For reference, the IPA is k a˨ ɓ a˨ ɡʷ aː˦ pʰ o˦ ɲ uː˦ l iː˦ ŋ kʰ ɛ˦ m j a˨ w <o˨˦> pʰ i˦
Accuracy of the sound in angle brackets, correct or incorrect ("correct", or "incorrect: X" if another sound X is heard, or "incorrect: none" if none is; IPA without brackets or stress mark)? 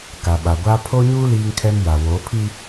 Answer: correct